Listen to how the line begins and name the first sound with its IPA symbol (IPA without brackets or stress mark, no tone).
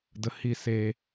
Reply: d